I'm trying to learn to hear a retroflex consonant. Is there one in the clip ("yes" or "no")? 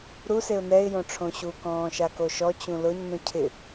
yes